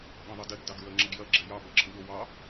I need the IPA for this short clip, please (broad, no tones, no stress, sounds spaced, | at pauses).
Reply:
ɠ ɐ̃ ðˤ ɐ d ɛ ɡ d ɑ ɡ ɹ ɜ ŋ͡ǁ ɐ ɡ j ɐ ɡ͡ǁ ɛ j ɑ b ɜ ǁʰ ə̃ ɠ o w ɑ